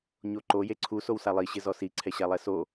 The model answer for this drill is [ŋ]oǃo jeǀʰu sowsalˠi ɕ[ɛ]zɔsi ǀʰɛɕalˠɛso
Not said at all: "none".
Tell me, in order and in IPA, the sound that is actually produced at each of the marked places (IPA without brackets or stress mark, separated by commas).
ɲ, ɪ